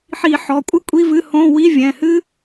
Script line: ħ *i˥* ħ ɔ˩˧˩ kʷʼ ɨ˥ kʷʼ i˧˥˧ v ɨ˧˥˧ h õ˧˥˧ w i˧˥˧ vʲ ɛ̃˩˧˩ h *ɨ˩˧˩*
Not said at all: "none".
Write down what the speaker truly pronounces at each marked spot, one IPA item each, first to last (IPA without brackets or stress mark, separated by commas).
i˨˩˦, ɨ˥